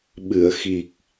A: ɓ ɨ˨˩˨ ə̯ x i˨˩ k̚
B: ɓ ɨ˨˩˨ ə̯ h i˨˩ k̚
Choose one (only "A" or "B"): A